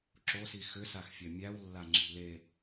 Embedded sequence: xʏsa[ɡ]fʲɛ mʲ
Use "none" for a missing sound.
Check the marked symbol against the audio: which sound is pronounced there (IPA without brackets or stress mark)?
x